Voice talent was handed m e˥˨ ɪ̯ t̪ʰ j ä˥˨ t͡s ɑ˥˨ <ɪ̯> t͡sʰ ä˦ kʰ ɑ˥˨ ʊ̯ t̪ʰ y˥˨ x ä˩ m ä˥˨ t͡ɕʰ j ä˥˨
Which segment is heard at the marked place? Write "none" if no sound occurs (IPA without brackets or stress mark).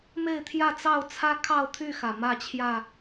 ʊ̯